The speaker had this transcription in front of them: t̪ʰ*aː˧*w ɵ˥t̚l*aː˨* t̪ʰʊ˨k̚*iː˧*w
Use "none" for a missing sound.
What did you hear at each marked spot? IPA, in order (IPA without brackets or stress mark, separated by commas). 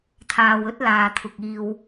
aː˨, aː˨, iː˧